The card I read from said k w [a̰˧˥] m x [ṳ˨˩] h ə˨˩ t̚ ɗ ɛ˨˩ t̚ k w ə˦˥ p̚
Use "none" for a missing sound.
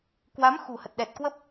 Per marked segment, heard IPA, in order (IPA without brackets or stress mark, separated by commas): a˨˦, ṳ˨˩